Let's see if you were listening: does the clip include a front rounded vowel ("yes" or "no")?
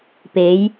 no